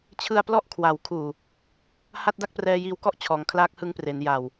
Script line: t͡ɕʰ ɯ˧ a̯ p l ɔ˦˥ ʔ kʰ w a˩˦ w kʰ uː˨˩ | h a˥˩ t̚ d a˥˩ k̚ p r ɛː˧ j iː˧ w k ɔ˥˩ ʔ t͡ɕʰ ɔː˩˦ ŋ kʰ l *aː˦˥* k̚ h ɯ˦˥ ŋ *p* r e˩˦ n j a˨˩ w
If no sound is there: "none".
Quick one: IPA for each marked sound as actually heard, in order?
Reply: aː˦˥, p

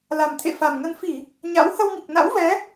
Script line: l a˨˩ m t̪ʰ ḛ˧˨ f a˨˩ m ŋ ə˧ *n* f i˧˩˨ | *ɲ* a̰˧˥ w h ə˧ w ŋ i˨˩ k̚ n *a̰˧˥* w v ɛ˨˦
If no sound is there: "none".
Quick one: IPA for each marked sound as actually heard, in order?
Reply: n, ɲ, a̰˧˥

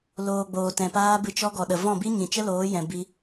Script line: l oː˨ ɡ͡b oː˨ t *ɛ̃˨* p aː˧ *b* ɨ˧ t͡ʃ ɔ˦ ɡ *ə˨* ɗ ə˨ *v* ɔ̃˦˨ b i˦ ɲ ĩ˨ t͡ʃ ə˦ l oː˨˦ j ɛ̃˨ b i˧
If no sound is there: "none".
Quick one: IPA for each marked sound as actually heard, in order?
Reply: ɛ̃˨, b, ɔ˨, v

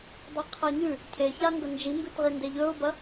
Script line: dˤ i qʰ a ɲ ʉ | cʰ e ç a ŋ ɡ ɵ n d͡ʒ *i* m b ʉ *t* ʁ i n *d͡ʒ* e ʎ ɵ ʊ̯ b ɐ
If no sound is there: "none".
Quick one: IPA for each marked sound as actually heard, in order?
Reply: i, t, d

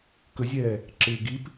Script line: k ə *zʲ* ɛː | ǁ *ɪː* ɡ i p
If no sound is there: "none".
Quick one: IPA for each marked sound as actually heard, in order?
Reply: zʲ, ɪː

